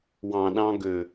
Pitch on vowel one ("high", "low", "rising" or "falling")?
low